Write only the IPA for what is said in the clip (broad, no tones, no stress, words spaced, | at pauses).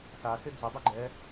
sasɪ d͡zədˤʉ ɡ͡ǃɛ